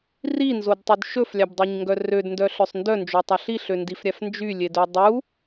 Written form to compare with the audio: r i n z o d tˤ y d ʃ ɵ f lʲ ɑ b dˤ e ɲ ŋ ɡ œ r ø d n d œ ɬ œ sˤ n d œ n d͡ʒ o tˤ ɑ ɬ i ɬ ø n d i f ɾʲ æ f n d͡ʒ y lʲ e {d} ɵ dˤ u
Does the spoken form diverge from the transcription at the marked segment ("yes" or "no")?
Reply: no